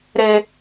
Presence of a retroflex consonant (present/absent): absent